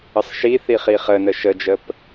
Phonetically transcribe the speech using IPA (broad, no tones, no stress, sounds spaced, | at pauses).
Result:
ə sˤ ʃ i θ i χ i χ ə n ə ʃ ə d͡ʒ ə p